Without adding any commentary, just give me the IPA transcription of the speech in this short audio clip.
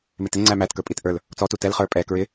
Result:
m ɪ t ɪ ŋ͡ǀ æ m æ t k ə˞ pʼ i t ʔ ə˞ l | t͡s ɔ t u t ɛ l χ ə˞ pʼ ɛ k ɹ ɪ

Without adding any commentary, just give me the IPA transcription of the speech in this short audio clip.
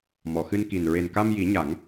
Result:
m ɔ˨˩˨ x ɨ˧ n k i˨˩ n ɹ e˨˩ n k a˧ m j i˨˩˦ ɲ a˨˩˦ ŋ

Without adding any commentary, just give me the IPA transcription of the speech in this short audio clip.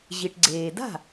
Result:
ʑ i˩ ʈ ɡ͡ǀ eː˩ d a̤˥˩

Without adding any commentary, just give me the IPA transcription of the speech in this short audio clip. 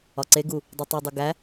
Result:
ɒ ǀ e ɡ u | dˤ u tˤ u dˤ u ɡ æ

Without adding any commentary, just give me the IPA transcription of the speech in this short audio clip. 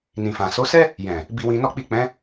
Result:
n ĩ˨ f ã˨ s o˨˦ s ɛ˦ | j ɛ̃˨ | b i˧ w ĩ˧ n ɔ˦ k͡p i˦˨ k͡p ɛ̃˨˦

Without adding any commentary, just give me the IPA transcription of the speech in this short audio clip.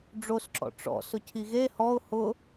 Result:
ɖ͡ʐ o s ǁ ɔ̰ ʈ͡ʂ ɔ̰ s ʊ cʰ i ɣ e h ɔ ʊ̯ h ʊ

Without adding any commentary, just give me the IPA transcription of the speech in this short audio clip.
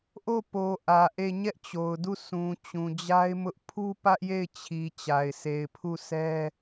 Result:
ʔ o˦˨ p o˨ ʔ ä˨ ʔ e˦˨ ɲ ɛ˦ ʔ t͡ɕ o˨ ʊ̯ d u˦˨ s ũ˨ t͡ɕ ũ˨ d͡ʑ a˦ ɪ̯ m ʊ˦ ʔ pʰ u˦ p ä˦ ʔ j e˦˨ ɪ̯ t͡ɕʰ i˨ t͡ɕ a˨ ɪ̯ sʰ e˨ ɪ̯ pʰ u˦˨ sʰ ɛ˦

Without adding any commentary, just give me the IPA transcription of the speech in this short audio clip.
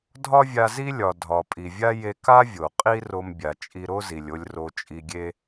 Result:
dʱ ɒ˥ vʲ a˧ z i˥ lʲ ɒ˩ dʱ ɒ˩ pʼ i˩ vʲ a˥ j e˧ k a˥ vʲ o˩ qʼ i˥ r o˧ m bʲ a˩ t͡ʃʼ i˧ ɾ o˥ z i˩ lʲ o˧ lʲ r o˧ t͡ʃʼ i˧ ɡʲ e˥

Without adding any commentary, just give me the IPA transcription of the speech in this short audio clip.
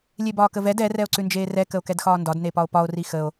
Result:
lʲ e b ɒː k ə v ɛ d ɛ r ɛ o̯ ǀ ʉ n d͡ʒ eː r ɛ k ə o̯ k ɛ d x ɒː n d ɒ d n e p ɒ o̯ p ɒ o̯ r i x ə o̯

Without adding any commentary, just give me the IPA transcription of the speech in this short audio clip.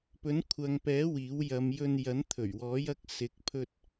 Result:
p ɵ˨˥ n kʷʰ ɐ˨ ŋ p ɛː˨˥ w iː˨˥ w j ɐ˨˧ m j ɵ˧ n j ɐ˨˥ n t̪ʰ ɵ˨˩ ɥ w ɔː˨˥ j ɐ˧ k̚ s ɪ˨˥ k̚ pʰ ɵ˧ t̚

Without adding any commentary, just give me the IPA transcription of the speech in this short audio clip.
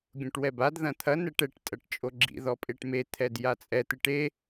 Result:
ɡʲ õ ʈ w ɛ b a d ð ɐ̃ t̪ʰ ɐ n ɛ ʈ ɛ ʈ tʼ ɐ ʈ t͡ʃʼ o ɡ͡ǁ ḭ ð ɔ pʼ e ʈ m e t̪ʰ ɛ d j a t͡sʼ ɛ t̪ ɨ ʈ e

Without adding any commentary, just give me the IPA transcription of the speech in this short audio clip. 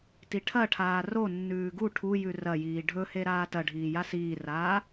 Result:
t i ʈʰ ɐ ʈʰ aː r o nː ʉː ɡ u ʈʰ u j ʉ r ɐ j iː ɖʱ ɵ h e ɾ aː t ɐ ɖʱ iː j a s iː r aː

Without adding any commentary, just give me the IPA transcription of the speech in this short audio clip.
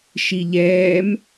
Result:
ʃ i ʎ ɛː m

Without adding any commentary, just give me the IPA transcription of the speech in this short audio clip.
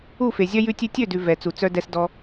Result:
u˦˨ f e˨ zʲ œ˦ j ʉ˧ tʲ ʉ˧ tʲ ø˦˨ d ʉ˨ v ɛ˨ t͡s u˨ t͡s œ˧ d ɛ˧ s d ɔ˧

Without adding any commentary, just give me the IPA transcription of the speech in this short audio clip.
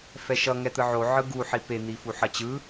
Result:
f ɛ ʃ ʌ ŋ ɛ t̪ ɯ ʕ o ʕ ɯ ɡ u ħ i p e n̪ i f u ħ ʌ t͡ɕ ɯ

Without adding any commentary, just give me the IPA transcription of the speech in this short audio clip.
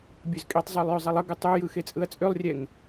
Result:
bʲ ø z kʼ i tˤ zˤ ø lˠ j ø zˤ i lˠ ə ɡ ɯ tˤ ø j ɯ x e t͡sʼ ɯ ɐ̯ t͡sʼ ø lˠ rʲ ɛ ŋ

